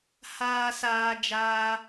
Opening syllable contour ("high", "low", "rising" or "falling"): low